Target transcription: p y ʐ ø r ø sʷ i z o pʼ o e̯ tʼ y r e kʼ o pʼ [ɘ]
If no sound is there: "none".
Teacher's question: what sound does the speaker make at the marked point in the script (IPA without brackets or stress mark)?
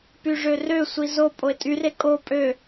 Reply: ø